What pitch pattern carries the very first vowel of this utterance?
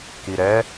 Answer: low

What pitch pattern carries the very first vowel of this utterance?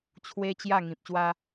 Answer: high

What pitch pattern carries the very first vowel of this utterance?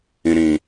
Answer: low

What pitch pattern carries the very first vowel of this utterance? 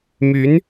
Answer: rising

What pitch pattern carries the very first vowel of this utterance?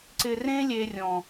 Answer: low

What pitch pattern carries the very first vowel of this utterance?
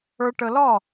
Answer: low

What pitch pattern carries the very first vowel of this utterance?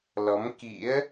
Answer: rising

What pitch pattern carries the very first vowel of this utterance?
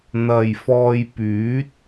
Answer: low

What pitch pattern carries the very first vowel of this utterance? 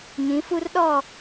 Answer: rising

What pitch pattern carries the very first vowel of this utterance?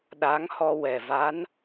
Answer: rising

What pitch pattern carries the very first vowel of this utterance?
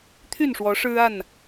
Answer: falling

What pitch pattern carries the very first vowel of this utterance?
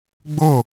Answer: falling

